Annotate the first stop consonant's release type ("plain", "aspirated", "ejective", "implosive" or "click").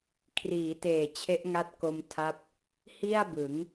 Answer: aspirated